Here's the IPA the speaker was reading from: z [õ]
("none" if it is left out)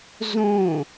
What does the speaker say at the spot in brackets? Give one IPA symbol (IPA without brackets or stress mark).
õ